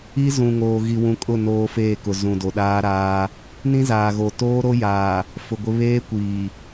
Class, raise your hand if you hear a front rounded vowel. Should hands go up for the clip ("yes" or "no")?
no